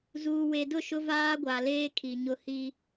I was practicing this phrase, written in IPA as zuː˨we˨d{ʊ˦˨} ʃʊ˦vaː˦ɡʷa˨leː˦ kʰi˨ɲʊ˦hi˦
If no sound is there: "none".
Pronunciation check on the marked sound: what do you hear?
ʊ˦˨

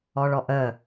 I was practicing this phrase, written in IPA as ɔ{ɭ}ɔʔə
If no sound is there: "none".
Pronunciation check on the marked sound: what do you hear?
ɭ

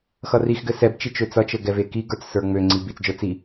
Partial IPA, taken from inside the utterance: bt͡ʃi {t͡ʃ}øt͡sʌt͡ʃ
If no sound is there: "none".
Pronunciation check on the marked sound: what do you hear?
t͡ʃ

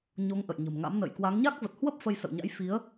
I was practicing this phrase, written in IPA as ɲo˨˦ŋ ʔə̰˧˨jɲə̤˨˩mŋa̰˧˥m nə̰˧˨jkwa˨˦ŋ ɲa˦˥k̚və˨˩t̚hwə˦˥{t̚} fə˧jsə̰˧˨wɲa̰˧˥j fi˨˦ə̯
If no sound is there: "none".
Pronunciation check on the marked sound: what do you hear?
p̚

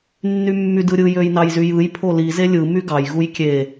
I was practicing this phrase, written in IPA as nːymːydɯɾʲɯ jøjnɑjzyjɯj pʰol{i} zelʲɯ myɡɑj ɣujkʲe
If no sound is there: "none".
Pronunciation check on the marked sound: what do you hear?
i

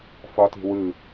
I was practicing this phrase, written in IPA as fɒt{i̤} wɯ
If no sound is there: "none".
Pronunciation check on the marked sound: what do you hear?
i̤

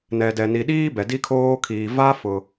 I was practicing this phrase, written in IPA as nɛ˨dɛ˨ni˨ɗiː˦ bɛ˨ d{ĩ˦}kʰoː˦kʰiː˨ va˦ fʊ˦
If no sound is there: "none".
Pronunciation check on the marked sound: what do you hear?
i˦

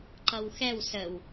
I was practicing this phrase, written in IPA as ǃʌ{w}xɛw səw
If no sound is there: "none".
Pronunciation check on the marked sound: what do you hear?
w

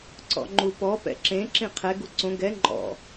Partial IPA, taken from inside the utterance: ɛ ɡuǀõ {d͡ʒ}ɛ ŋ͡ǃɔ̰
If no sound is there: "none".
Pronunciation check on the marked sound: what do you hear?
ɡ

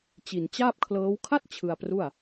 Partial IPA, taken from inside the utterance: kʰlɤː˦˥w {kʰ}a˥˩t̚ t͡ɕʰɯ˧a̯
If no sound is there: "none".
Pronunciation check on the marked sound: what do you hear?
kʰ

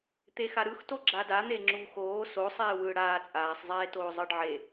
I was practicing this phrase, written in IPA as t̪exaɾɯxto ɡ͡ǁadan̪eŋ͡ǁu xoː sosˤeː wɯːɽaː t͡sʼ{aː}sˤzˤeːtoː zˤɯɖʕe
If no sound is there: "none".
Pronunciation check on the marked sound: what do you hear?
aː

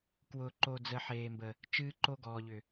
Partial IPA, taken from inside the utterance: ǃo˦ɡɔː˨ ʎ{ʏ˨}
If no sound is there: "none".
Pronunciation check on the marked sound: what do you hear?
ʏ˨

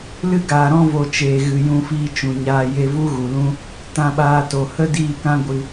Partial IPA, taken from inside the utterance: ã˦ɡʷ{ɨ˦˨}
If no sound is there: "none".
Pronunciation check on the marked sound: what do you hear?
ɨ˧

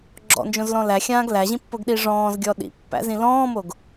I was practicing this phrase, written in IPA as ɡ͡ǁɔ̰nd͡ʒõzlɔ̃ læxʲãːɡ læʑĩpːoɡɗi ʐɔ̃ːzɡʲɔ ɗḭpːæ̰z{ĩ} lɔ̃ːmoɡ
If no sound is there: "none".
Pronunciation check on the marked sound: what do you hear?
ĩ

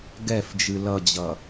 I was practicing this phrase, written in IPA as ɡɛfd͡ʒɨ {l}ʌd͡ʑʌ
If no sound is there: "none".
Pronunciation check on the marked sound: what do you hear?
l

